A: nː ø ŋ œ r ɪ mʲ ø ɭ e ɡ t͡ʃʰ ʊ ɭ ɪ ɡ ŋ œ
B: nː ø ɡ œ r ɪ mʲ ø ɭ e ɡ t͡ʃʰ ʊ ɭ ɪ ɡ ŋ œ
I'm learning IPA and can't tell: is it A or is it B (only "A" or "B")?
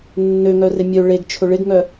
A